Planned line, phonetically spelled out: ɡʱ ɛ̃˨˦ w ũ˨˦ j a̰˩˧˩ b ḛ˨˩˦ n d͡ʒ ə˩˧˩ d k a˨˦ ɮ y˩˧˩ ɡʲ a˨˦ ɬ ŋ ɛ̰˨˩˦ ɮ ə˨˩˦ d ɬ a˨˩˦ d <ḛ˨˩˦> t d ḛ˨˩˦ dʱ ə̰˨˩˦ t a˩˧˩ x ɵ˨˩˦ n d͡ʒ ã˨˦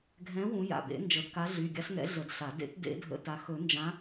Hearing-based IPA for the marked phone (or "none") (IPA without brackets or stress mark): ḛ˨˩˦